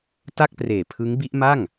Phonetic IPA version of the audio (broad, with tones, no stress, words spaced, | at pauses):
ta˥˩k̚preː˨˩ pʰɯ˦˥ŋbi˦˥ʔma˥˩ŋ